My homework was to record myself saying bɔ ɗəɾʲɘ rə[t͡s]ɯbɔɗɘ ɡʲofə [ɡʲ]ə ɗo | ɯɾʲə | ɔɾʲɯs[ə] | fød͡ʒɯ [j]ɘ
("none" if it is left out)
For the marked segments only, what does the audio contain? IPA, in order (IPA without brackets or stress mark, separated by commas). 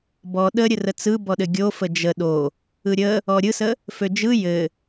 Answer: t͡s, d͡ʒ, ə, j